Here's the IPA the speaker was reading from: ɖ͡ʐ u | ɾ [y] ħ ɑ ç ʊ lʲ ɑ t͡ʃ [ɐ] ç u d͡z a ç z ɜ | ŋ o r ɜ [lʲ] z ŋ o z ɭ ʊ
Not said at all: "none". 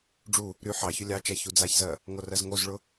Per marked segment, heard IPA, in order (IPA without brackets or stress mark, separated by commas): y, a, none